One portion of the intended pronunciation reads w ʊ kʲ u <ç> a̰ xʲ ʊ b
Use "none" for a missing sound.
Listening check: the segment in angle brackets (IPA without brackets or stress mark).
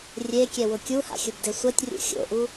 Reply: h